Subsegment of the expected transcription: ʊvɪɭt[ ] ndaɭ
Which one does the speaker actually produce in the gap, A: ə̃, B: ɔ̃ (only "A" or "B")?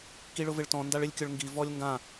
B